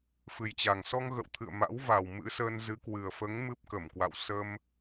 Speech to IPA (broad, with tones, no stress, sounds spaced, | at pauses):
f ɨ˨˩ j t͡ɕ a˨˩ ŋ s ɔ˧ ŋ ɣ ə̰˧˨ w t̪ʰ ɨ̰˧˨ ə̯ m a̰˧˥ w v a˨˩ w m ɨ̰˧˥ s əː˧ n z ɨ˨˦ k w ɨ˨˩ ə̯ f əː˨˦ ŋ m ɨ˦˥ p̚ k ə˧˩ m k w a̰˧˨ w s ə˧ m